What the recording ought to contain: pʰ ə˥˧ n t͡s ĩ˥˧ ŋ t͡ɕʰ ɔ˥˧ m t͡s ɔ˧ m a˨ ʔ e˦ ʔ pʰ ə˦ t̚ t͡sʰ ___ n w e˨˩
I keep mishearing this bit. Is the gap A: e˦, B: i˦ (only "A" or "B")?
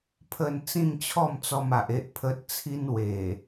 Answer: B